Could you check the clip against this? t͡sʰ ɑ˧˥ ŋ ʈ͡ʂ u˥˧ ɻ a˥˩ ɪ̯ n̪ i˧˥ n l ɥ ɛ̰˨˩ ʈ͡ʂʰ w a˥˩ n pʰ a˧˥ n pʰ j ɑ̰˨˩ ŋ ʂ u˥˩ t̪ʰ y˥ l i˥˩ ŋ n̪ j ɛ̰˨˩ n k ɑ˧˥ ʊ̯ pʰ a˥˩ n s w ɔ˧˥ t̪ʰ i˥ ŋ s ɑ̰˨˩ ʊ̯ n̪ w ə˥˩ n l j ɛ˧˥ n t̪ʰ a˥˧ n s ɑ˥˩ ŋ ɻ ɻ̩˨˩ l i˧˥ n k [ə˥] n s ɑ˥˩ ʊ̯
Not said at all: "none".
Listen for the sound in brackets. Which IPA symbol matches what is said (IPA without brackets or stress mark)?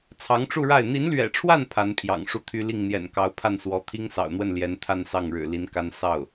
a˥